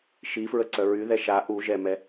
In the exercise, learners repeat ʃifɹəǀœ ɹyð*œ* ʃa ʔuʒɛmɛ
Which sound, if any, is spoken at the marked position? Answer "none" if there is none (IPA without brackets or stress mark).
ɛ